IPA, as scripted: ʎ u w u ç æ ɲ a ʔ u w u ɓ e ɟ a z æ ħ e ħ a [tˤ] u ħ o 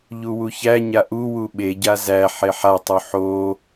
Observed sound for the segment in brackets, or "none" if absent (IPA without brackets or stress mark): tˤ